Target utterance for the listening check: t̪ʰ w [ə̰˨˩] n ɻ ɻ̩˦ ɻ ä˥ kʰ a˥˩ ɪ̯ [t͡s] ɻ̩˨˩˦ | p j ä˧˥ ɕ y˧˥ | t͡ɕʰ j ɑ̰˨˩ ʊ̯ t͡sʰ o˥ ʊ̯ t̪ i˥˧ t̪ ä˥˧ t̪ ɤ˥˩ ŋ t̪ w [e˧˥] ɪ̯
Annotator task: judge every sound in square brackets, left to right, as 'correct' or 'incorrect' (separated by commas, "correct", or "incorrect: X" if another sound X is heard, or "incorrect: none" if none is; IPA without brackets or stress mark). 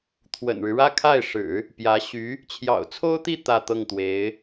correct, incorrect: ʂ, correct